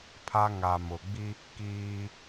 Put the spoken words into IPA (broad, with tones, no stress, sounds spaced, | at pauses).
pʰ a˦ ŋ a˨ m ʊ˨ ɡ͡b i˦ | k iː˦